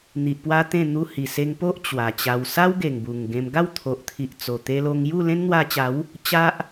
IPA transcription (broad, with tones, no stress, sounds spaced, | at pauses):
n̪ i˨ ʔ p w a˦ t̪ ẽ˥˧ n̪ u˧ h i˨˩ s e˧ ŋ p o˦ ʔ t͡ɕ w a˨˩ t͡ɕ a˧ w s a˦ w ɡ e˨˩ ŋ b u˨˩ ŋ ɡ ẽ˧ m ɡ a˥˧ w t̪ʰ o˨ ʔ t̪ʰ i˨ ʔ t͡s o˨˩ t̪ e˧ l o˧ ŋ j u˥˧ l ẽ˦ n n̪ w a˧ t͡ɕ a˨˦ w | t͡ɕ a˦ ʔ